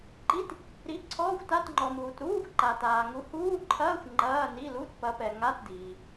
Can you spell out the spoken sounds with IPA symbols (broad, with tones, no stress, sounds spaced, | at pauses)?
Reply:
ǃ i˧˥˧ t | ɾ i˨˥ ǀʰ ɔː˧˥˧ xʷ t a˧˥˧ t ŋ͡ǃ ɔ˨ m uː˨ t ɾ uː˧˥˧ xʷ ǃ a˨ t aː˨ ŋ u˨˥ h uː˧˥˧ ǃʰ ɐː˧˥˧ xʷ ŋ͡ǃ ɐː˧˥˧ n i˧˥˧ l u˧˥˧ t p ɐ˨˥ p ɛ˨ ŋ a˧˥˧ t d iː˨